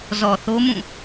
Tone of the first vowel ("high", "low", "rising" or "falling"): low